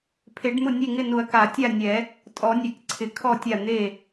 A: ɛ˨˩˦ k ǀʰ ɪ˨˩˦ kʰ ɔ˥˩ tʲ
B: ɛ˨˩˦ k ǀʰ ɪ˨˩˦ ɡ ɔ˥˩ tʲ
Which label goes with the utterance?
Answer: A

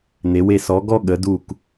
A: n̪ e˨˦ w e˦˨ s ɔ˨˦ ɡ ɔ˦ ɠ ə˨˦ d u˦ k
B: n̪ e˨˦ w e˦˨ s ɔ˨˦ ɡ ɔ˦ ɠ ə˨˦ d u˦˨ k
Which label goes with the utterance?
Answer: B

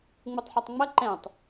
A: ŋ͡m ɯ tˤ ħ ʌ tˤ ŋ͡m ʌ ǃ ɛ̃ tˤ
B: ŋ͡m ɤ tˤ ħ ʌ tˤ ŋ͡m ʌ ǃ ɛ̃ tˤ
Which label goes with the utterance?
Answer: A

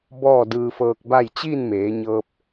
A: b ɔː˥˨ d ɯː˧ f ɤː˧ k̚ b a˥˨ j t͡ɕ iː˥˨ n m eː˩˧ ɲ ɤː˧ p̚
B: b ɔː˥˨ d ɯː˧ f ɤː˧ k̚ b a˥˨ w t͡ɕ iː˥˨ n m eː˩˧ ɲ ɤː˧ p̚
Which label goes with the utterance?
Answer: A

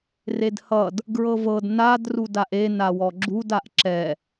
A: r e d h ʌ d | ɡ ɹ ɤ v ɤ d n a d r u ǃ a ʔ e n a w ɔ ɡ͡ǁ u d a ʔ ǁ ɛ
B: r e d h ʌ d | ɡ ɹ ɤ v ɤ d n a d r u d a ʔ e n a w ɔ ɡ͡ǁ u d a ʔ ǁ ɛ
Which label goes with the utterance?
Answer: B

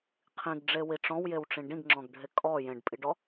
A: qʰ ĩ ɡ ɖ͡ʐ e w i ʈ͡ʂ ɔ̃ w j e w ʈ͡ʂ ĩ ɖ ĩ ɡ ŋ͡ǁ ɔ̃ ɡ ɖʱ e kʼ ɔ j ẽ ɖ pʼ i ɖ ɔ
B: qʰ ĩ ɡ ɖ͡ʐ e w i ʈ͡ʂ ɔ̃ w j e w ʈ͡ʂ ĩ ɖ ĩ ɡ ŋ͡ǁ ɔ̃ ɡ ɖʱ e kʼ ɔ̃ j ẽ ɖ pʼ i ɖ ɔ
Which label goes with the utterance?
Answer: A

